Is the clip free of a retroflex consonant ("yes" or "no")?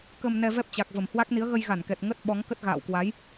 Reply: yes